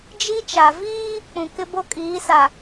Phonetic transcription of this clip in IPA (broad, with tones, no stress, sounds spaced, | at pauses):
d͡ʒ i˦ t͡ʃ a˨ v iː˦ | k͡p ũ˨ k ɪ˦ b o˦ kʼ iː˨˦ s a˨